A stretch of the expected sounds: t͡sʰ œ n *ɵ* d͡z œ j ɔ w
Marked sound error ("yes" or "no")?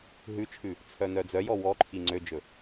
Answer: yes